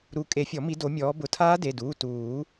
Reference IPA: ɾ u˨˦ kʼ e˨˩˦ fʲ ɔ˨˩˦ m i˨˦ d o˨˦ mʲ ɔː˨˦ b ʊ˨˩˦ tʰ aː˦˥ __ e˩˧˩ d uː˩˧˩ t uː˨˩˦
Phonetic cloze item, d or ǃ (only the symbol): d